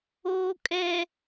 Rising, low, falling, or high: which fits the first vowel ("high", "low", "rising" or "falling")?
low